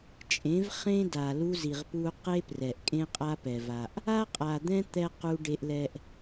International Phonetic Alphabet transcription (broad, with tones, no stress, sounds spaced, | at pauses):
t͡ʃʼ ẽ˨˦ v χ ẽ˦ d a˨ l u˧ z i˨ ʁ p u˧ q e˦ p r ɛ˨ ʔ kʼ ẽ˦ qʼ a˦ p ɛ˨ v a˨ ʔ | a˦ qʼ a˨ d̪ ɛ̃˦ t̪ ɛ˧ q u˧ ɖ e˧ ʔ l ɛ˧ ʔ